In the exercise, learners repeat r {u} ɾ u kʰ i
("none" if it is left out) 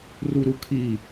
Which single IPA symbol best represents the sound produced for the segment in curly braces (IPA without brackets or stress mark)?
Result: u